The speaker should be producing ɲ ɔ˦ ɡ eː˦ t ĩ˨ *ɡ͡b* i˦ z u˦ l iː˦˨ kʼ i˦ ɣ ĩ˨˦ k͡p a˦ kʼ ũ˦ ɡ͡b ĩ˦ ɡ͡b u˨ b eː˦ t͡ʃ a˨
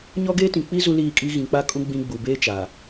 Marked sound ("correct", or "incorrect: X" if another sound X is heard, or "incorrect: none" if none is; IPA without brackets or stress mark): incorrect: k͡p